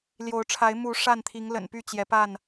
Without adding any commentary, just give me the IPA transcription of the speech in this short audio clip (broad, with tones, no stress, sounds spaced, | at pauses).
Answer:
l j o˨˦ ʊ̯ ʈ͡ʂʰ a˨˦ ɪ̯ m u˨˦ ʂ a˥˨ n t̪ʰ i˨˦ ŋ l ə̰˨˩ n p y˥˨ t͡ɕ j ɛ˨˦ p a˥˨ n